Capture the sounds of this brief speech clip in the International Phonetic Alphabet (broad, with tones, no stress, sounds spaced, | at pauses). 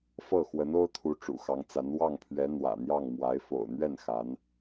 f ɤ˥˩ x w ə˧˥ n o˥ ʊ̯ t̪ʰ u˧˥ ʈ͡ʂ ṵ˨˩ x ɑ˧˥ ŋ t͡s a˧˥ n w ɑ˥˩ ŋ pʰ ɥ ɛ˧˥ n̪ w ä̰˨˩ n̪ j ɑ˥˩ ŋ m w a˧˥ ɪ̯ f o̰˨˩ ʊ̯ n̪ ɥ ɛ˥˩ n x a˧˥ n